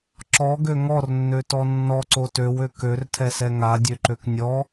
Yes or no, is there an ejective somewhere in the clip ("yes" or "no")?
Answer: no